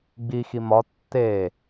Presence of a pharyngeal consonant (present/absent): absent